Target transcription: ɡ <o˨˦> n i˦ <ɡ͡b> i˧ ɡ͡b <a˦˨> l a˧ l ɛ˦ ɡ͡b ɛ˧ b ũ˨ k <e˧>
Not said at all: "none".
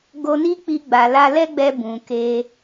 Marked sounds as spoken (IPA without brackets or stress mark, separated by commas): o˧, k͡p, a˨, e˧